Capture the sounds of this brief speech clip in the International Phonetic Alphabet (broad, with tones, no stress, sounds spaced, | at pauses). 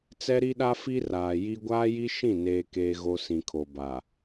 t͡s ɛ˦ ɾ i˦ ɗ a˦ f i˦ r aː˨ j i˦ ɡʷ aː˦ j i˦ ʃ ĩ˦˨ n eː˦ k eː˦ ɣ o˦ s ĩ˨ kʰ o˨ b a˨